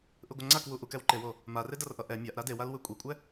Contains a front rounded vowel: no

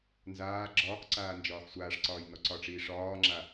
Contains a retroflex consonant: yes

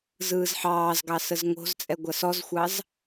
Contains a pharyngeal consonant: yes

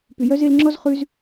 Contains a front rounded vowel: yes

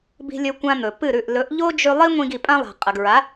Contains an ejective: yes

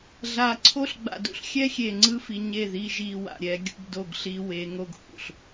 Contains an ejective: no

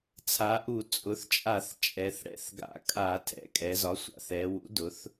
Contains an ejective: yes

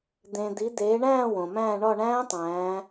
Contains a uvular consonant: no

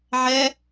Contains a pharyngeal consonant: yes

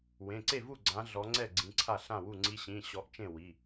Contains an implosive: no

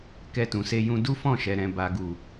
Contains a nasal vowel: yes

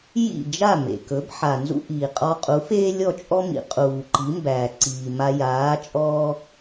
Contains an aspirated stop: no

